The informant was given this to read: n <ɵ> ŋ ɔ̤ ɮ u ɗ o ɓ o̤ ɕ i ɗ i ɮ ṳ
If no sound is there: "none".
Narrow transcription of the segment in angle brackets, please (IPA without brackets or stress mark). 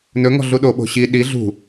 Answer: ɵ